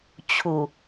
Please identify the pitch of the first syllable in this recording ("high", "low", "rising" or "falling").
low